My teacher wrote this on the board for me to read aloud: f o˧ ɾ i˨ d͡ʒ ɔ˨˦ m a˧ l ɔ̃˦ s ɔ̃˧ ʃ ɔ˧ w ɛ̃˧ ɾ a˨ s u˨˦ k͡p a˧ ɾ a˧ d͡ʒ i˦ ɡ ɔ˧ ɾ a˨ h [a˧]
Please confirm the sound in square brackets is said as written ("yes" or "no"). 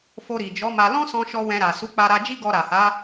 no